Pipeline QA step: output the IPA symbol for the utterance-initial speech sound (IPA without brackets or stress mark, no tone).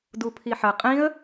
d